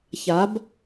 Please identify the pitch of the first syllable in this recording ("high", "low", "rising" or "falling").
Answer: rising